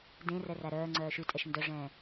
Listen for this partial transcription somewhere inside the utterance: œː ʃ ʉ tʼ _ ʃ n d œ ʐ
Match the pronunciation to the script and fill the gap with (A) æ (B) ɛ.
B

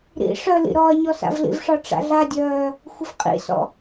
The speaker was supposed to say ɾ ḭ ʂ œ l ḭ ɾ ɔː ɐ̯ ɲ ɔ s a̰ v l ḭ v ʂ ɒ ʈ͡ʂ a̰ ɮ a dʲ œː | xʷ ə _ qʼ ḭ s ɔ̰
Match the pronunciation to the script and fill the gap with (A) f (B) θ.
A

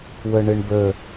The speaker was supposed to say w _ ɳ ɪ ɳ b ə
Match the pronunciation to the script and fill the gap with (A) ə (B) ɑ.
A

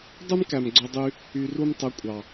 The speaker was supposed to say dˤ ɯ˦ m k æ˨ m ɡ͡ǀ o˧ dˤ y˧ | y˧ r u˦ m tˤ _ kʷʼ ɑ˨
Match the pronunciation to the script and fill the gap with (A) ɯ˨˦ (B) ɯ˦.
A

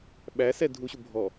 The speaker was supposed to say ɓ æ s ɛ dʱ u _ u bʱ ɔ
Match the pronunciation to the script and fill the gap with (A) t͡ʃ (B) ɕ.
B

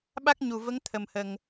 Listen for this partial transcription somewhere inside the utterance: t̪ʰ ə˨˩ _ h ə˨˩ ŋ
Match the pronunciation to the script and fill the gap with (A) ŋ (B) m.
B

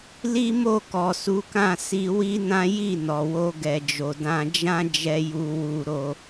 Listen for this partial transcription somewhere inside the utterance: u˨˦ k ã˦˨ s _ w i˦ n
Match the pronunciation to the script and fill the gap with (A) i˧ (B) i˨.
A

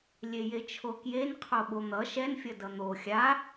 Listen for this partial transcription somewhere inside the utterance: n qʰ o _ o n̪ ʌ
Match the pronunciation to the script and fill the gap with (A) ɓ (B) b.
A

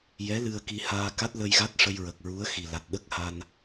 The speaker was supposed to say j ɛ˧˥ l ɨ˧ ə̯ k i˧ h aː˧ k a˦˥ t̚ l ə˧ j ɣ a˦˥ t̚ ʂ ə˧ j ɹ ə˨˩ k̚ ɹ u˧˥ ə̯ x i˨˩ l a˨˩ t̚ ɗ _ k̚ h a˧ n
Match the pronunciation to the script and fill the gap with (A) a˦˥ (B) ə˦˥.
B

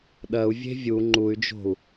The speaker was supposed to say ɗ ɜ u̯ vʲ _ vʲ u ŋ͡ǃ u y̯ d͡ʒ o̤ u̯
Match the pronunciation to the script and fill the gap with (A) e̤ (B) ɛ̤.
A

